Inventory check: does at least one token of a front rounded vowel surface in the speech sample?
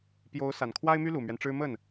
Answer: yes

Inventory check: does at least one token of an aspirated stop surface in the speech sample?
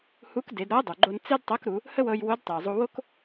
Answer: no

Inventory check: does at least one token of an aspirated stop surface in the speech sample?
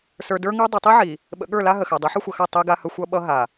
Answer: no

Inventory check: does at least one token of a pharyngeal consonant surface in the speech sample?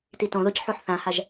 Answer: yes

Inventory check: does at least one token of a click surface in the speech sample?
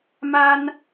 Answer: no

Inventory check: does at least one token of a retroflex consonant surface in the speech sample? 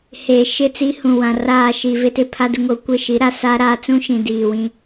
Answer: no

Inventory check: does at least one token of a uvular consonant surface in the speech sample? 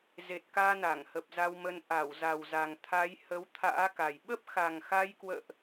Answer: no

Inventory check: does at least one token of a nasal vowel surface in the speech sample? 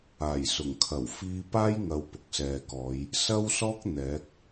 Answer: no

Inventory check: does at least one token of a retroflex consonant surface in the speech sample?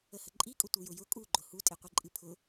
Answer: no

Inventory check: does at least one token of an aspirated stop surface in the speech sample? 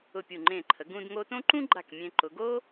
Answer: yes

